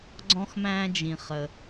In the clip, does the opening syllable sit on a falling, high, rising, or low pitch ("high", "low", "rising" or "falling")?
high